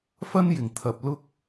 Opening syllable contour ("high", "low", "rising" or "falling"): high